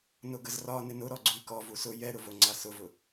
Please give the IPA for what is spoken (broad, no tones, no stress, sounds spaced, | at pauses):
n ʊ ɡ ə z r ɒ n ɪ n ʊ ɾ ɔ ɡ͡ǀ u i̯ k ɔ v u s ʊ j ɛ ɾ ʊ v o ŋ͡ǀ a s ʊ v ʊ